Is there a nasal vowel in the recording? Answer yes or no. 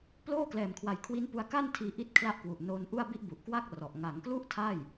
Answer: no